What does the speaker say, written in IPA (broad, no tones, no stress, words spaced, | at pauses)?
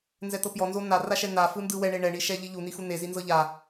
nzɛt̪ɤpjɔ nzonaraʃɛ n̪afɯ ndɯwɛ ɳeɳɛɳiʃɛ ʎiʎuni xun̪e zinzɤʎa